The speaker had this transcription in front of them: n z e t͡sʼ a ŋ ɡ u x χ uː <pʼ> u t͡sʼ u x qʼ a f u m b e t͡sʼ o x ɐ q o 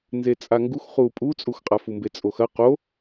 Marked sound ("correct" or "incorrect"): correct